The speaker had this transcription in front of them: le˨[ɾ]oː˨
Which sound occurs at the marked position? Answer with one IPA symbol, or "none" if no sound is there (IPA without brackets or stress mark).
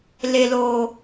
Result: l